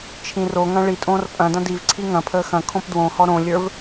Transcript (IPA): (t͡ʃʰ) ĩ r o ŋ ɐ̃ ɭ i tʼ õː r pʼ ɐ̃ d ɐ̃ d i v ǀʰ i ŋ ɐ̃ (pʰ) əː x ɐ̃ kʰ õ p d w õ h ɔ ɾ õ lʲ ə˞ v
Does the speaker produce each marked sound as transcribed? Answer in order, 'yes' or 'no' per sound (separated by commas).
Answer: yes, yes